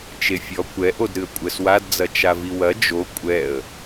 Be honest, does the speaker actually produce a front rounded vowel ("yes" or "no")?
no